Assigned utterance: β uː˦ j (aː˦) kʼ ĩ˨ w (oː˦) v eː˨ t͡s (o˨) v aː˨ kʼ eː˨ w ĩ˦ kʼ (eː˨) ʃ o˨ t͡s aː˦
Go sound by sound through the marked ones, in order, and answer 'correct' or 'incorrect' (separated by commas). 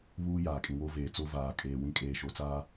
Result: incorrect, incorrect, incorrect, correct